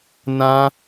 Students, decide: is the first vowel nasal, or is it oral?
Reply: nasal